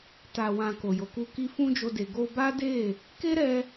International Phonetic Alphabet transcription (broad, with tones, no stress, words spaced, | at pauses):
ta˨ wã˨ ko˨jo˨ku˧ki˦ fũ˦d͡ʒo˧de˨ ɡo˧ba˦de˦˨ | ke˦ɾɛ˧